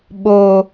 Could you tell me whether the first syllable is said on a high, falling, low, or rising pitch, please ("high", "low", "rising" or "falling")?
low